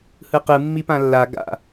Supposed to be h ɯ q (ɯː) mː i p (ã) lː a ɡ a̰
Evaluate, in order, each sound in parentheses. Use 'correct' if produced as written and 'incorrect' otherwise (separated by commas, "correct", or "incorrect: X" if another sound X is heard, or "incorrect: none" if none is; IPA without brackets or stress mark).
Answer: incorrect: ɯ, correct